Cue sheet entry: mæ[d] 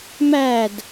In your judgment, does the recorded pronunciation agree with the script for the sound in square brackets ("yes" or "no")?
yes